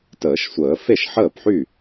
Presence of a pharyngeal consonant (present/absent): present